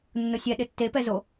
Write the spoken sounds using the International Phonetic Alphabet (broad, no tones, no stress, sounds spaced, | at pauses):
nː ʊ sʲ ɛ ɗ ɪ tː e p ɛ z o